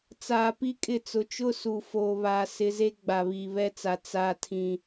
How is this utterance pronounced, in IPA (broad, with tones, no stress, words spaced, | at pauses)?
t͡saː˨pi˦kʼɪ˦˨t͡sʊ˨˦ t͡ʃʊ˦su˨ foː˨βaː˨ sɪ˨ze˦ ɡ͡ba˨βiː˨βɛ˦t͡sa˨ t͡saː˨tʰĩ˨